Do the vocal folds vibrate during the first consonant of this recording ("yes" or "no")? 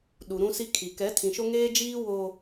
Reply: yes